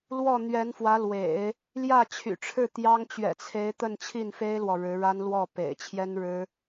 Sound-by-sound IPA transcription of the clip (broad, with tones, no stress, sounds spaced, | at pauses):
l w ɔ˥˩ n̪ ɥ ɛ˧˥ n f w ä˧˥ l w ḛ˨˩˦ ɪ̯ | l j ä˥˩ t͡ɕʰ y̰˨˩ ʈ͡ʂʰ ɻ̩˥˩ t̪ j ɑ˥ ŋ t͡ɕ ɥ ɛ̰˨˩ t͡sʰ e˧˥ ɪ̯ t̪ ə˥˧ n t͡ɕʰ i˥˩ n f e˥ ɪ̯ l w ɔ˨ ɻ ɻ̩˧˥ ɻ a˥ n l w ɔ˥˩ p ḛ˨˩ ɪ̯ t͡ɕʰ j ɛ˥ n ɻ ɻ̩˥